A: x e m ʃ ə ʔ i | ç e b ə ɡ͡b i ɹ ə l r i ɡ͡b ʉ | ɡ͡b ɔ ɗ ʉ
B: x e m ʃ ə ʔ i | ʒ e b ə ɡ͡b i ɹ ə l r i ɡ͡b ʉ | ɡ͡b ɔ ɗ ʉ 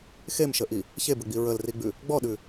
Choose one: A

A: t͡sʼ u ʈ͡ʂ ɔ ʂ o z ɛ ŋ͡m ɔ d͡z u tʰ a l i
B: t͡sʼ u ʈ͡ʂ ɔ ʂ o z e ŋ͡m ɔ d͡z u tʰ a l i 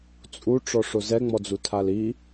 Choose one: A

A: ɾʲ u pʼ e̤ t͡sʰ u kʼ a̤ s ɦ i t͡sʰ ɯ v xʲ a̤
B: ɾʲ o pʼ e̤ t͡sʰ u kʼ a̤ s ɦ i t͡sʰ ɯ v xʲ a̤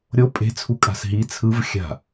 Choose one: B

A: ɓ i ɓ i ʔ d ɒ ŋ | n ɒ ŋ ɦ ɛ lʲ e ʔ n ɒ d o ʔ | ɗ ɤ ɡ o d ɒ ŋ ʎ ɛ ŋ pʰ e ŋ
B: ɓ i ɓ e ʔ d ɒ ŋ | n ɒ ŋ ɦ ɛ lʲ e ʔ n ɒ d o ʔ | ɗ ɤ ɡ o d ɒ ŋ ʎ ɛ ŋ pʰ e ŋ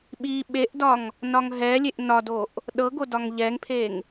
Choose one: B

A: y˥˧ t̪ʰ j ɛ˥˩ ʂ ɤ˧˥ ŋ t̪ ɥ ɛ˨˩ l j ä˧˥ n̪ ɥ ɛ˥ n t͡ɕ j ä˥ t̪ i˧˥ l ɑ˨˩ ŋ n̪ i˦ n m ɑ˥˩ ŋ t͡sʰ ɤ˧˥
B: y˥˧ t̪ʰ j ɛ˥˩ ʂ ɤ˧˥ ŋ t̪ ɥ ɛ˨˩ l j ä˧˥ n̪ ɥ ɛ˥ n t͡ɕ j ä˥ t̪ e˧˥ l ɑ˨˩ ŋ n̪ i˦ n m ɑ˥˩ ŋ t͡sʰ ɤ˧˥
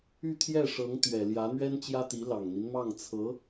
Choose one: A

